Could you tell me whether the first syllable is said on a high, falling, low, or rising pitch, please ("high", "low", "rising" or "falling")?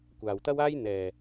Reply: low